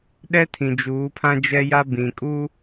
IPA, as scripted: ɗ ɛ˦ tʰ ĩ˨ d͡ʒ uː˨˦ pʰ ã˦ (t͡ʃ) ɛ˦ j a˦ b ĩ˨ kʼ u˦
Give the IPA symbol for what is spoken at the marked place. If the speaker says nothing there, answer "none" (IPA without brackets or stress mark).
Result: d͡ʒ